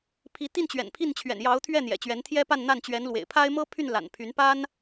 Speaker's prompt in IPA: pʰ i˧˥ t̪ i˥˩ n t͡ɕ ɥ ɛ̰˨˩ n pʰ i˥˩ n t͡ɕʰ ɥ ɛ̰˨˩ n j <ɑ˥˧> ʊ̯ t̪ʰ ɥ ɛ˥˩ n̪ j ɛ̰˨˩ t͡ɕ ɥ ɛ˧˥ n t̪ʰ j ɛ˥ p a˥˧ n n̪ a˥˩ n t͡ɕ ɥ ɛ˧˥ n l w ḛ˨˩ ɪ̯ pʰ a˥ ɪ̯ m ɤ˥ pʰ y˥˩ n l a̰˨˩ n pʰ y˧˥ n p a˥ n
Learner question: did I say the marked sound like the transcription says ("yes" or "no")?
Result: no